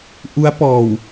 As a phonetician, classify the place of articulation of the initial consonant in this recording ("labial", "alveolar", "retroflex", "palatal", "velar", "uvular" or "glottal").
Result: glottal